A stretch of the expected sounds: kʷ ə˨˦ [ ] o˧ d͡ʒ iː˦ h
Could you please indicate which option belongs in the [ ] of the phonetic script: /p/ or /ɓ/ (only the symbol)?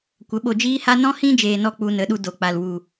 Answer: ɓ